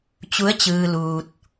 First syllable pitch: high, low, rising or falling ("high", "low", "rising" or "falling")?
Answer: rising